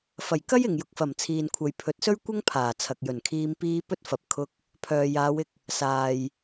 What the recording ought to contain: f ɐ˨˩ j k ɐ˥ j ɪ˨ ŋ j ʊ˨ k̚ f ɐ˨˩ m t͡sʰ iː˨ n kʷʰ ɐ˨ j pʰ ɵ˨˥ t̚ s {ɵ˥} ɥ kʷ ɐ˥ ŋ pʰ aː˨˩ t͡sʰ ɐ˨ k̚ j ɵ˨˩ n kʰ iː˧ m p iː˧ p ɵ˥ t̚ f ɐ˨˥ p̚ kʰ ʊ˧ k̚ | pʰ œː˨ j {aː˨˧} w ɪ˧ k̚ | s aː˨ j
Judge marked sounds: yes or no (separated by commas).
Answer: yes, yes